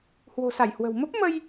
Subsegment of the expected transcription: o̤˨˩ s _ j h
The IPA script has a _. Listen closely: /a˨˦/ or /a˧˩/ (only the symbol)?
a˧˩